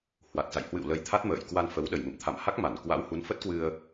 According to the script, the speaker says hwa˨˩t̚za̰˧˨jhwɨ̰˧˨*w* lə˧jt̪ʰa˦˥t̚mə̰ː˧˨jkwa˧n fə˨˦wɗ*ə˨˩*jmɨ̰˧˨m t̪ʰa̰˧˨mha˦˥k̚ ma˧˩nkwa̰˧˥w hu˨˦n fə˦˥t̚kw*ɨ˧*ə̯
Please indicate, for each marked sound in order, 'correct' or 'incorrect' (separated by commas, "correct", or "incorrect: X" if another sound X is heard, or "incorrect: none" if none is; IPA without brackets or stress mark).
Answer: correct, correct, correct